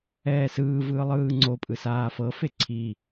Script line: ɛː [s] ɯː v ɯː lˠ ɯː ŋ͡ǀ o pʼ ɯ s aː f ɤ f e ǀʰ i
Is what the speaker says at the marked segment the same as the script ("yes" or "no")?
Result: yes